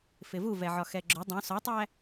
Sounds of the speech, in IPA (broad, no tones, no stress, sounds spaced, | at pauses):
f ɪ v u v ɛ ʕ ɒ x ɛ ɡ͡ǁ ʊ dˤ ũ s ɒ tˤ æ